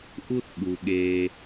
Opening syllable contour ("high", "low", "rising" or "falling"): high